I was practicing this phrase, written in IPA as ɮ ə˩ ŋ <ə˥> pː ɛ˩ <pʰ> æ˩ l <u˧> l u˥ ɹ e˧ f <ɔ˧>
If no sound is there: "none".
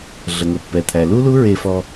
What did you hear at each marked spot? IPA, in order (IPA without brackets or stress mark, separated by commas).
ə˩, t̪ʰ, u˥, ɔ˧